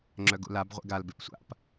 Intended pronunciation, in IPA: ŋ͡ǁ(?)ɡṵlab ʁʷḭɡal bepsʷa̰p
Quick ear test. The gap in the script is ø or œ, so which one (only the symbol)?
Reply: œ